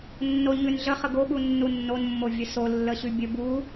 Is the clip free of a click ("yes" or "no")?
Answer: yes